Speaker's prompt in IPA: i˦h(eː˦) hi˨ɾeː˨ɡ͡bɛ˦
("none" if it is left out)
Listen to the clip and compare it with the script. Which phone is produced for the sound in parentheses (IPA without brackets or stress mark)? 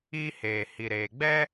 eː˨